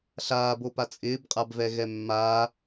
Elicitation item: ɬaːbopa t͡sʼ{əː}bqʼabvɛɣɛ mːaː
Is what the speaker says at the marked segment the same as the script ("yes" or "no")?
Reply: no